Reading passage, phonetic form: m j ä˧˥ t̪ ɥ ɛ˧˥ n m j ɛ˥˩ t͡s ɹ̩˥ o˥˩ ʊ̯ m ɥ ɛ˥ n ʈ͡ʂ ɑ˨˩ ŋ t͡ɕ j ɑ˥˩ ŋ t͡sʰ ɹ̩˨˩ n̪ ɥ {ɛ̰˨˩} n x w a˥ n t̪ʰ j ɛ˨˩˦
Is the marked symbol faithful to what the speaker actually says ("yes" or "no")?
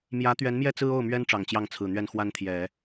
no